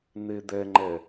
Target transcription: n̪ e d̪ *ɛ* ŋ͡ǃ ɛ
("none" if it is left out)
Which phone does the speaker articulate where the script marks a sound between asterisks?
ɛ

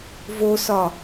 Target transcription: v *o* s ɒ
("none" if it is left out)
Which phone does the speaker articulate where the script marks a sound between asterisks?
o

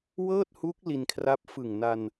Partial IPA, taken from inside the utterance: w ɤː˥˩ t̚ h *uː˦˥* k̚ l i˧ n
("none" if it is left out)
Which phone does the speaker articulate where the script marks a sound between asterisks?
uː˦˥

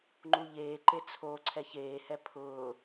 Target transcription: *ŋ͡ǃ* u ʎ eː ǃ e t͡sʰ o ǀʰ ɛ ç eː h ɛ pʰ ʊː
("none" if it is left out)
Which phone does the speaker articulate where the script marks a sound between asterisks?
ŋ͡ǃ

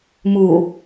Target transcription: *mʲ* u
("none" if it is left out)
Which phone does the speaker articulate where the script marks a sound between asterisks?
m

